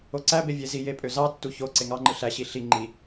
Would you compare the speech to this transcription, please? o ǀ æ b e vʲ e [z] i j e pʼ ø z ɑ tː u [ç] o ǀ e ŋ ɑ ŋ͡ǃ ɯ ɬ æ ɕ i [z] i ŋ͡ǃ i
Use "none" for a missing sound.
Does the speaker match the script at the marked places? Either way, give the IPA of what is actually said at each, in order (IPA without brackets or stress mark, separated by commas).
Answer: z, ç, ɬ